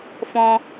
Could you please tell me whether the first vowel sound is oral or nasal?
nasal